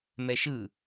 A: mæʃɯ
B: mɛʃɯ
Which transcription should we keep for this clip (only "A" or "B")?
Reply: B